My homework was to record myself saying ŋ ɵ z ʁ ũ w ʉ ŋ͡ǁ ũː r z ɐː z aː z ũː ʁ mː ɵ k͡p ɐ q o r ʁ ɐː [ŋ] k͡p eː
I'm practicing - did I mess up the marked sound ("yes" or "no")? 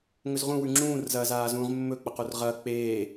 yes